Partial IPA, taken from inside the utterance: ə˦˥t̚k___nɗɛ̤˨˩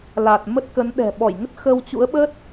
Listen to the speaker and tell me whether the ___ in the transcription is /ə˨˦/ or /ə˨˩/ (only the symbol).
ə˨˦